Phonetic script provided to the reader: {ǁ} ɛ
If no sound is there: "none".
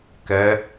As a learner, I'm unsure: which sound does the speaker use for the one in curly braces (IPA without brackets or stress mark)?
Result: k